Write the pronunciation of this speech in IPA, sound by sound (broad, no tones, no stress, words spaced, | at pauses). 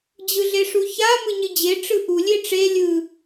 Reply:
d͡ʑɯɮeʂuça mɯɲɯd͡ʑe ʈ͡ʂɯʔu lʲeʈ͡ʂe lʲɯ